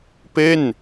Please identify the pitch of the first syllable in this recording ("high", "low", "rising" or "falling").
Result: falling